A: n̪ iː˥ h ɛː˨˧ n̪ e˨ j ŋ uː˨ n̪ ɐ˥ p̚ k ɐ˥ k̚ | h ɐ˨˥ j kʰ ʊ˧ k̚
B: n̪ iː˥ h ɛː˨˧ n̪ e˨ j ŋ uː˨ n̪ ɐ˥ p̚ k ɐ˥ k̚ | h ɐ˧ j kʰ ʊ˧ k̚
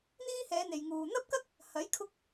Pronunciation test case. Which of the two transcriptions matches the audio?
A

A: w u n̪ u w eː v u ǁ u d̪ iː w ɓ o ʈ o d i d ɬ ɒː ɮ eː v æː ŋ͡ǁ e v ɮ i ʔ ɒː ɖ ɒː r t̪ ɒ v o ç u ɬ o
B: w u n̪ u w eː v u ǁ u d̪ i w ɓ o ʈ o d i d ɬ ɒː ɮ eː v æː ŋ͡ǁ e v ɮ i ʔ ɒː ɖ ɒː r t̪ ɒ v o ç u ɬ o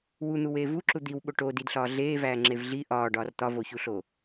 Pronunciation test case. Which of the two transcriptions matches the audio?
B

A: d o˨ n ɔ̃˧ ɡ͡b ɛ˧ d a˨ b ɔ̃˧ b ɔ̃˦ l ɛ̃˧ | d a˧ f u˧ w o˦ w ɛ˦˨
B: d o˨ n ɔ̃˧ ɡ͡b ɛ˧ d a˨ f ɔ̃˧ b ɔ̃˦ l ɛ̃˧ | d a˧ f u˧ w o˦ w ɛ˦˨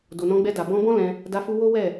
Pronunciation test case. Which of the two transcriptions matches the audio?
A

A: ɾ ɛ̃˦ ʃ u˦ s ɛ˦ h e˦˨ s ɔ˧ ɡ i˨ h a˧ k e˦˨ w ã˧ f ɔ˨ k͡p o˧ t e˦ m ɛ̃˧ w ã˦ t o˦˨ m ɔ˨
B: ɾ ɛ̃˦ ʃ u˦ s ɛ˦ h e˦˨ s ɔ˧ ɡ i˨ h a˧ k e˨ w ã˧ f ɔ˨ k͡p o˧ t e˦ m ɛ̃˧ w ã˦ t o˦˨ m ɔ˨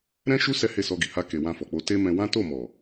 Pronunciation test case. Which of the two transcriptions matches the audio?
B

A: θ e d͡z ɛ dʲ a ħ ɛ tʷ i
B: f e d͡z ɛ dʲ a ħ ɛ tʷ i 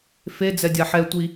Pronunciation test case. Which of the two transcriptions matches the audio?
B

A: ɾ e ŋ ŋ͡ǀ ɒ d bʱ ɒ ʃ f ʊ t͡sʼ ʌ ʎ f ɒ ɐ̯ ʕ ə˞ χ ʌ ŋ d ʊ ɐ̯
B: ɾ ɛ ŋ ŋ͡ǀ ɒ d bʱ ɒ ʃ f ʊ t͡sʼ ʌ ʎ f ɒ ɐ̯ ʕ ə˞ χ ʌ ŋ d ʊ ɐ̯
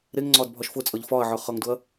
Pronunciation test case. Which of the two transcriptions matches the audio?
A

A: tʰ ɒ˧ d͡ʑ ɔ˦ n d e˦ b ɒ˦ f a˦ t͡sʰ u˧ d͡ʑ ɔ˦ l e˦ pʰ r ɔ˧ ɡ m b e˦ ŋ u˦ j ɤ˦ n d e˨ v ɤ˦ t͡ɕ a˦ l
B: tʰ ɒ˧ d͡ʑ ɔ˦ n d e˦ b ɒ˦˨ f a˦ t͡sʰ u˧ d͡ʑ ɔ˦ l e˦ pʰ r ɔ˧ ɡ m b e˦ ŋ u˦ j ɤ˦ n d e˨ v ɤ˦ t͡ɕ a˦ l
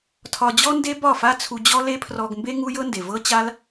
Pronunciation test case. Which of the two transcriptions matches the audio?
B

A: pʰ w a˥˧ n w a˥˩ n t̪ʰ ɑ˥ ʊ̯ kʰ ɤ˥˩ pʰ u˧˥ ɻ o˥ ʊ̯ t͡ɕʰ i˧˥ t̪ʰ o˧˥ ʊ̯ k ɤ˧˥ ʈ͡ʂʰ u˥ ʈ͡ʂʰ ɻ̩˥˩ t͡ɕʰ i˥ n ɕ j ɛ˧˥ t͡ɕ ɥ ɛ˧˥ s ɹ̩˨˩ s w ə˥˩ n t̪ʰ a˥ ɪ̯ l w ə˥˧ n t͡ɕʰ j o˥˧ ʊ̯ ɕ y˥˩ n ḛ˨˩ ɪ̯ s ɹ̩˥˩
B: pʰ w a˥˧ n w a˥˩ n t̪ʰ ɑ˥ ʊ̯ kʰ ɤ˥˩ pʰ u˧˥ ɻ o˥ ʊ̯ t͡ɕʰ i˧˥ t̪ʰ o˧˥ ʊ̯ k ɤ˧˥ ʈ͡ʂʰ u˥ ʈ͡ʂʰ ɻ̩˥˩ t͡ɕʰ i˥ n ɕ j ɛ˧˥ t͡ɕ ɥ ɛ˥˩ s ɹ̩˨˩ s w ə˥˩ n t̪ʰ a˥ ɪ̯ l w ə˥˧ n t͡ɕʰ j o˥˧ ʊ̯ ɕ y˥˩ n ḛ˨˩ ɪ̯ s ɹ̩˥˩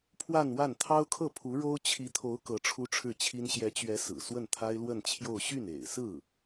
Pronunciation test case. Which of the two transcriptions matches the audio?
A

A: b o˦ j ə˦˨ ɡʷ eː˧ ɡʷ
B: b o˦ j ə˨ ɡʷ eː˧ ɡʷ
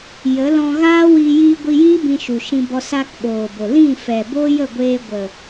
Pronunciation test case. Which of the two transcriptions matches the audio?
A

